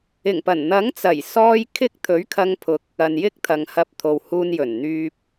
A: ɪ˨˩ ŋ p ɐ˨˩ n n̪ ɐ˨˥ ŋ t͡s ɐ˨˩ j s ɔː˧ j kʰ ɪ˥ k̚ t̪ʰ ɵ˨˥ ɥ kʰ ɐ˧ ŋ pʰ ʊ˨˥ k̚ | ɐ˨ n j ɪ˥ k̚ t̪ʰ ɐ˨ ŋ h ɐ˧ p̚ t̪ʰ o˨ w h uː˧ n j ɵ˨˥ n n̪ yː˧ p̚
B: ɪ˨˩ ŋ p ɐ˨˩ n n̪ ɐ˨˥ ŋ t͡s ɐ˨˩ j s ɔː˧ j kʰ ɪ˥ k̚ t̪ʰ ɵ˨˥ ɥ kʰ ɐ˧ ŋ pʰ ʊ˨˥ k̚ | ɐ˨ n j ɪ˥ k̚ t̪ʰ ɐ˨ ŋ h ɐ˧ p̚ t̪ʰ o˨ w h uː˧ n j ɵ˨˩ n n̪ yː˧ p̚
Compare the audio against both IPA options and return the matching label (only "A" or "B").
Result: B